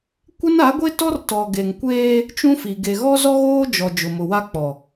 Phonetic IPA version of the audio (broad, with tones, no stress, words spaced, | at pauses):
kʷɪ˦na˨˦ɡʷe˦tɔ˦r tɔ˨ ɡe˨ŋkʷeː˦ | t͡ʃũ˦fi˨ ɡe˨ɣɔ˦ zɔ˦ɣoː˦d͡ʒɔ˨ d͡ʒʊ˨mʊ˨wa˦k͡pɔ˨